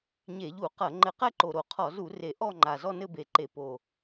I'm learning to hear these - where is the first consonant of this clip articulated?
palate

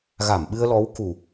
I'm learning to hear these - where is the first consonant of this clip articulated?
velum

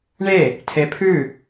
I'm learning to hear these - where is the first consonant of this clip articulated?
retroflex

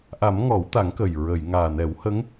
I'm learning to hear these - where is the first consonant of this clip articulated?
throat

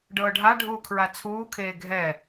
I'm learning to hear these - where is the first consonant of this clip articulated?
retroflex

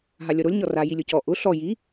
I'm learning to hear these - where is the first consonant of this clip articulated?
throat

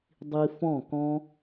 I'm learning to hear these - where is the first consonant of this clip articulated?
tongue tip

